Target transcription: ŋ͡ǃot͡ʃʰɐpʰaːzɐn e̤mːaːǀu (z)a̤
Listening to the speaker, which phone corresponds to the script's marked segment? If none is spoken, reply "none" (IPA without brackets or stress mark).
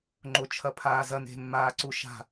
ʃ